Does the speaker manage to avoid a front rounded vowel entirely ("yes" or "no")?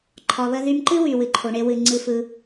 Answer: no